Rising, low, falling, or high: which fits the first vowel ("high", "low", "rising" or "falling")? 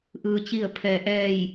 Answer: low